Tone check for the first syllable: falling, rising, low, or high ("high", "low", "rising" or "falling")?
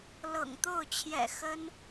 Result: low